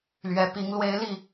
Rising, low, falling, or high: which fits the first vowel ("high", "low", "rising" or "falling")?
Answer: rising